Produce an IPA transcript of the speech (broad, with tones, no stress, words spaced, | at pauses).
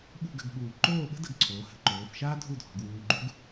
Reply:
ɓṳ˥˧ɡə̤˧ɡɓuː˧˩ ǃoː˥˧ɓə̤˥də˧ɡ ǀʰoː˩˧hə̤˩˧ǃoː˩˧fʃaː˥ dʱu˥˧dʱɔ̤˩˧ɡwuː˧ɡ͡ǃu˥ɡ